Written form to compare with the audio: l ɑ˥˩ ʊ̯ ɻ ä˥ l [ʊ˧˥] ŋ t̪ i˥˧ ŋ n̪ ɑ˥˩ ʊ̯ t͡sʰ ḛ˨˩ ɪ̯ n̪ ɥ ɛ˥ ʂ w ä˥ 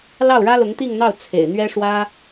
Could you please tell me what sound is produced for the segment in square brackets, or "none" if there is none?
ʊ˧˥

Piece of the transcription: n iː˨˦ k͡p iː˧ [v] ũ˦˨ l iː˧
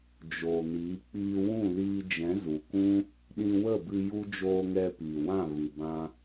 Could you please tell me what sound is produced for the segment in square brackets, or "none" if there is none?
w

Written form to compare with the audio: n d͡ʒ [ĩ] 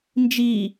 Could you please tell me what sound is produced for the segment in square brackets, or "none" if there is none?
i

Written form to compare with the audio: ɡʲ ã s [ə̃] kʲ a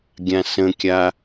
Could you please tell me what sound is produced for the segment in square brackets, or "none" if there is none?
ə̃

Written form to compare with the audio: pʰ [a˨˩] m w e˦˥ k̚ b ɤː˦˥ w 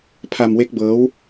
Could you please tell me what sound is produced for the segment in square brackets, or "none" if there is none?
a˧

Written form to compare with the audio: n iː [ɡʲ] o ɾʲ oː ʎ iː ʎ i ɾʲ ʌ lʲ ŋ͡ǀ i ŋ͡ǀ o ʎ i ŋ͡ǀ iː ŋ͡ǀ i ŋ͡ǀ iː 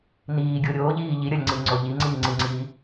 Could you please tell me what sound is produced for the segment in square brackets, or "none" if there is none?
ɡʲ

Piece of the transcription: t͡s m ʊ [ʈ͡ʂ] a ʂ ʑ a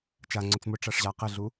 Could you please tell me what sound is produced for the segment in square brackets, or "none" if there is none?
ʈ͡ʂ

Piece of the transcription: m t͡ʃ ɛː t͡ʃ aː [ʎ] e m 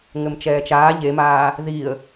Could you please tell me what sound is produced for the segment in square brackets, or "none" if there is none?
ʎ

